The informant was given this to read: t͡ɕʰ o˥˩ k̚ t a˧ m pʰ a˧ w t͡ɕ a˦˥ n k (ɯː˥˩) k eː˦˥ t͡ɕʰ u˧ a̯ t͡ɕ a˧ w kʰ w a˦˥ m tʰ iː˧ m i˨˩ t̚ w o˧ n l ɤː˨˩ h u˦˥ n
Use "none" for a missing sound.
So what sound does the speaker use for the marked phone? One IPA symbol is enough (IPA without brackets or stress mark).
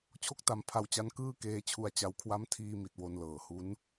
ɯː˥˩